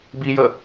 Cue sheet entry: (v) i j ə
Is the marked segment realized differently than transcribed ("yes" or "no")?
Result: yes